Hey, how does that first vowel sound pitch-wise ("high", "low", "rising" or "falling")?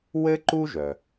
high